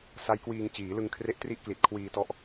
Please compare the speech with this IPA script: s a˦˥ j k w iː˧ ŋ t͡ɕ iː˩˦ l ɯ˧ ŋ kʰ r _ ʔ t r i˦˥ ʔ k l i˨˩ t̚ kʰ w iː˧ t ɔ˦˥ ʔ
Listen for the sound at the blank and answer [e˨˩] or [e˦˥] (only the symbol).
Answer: e˦˥